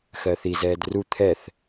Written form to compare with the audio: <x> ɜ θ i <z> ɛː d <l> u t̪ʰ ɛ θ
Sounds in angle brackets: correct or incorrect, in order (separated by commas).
correct, correct, incorrect